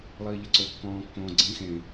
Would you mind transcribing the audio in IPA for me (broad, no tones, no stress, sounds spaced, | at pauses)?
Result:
lˠ iː ʎ ə ǀ o kː ɔ̃ː kː õː ɡ͡ǀ ĩ x ẽ